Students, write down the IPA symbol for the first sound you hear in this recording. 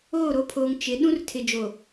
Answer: oː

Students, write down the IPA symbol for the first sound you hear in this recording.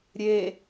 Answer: ɾʲ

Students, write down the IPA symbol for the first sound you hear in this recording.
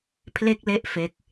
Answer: pʰ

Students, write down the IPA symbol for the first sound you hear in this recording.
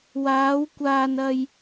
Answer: w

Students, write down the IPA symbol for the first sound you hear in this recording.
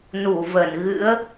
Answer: n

